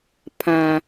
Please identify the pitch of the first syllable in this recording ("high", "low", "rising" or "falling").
low